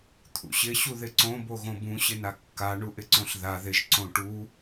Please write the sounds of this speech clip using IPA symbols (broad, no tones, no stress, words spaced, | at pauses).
t̪ʰṵɕɪ ɕuðɪǀõ boɣõbũ ɕɪnakːa ɳuʔɪǀõɬða ðɪʒ ǀõʈu